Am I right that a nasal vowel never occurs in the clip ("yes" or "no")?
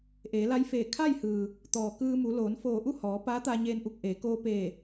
yes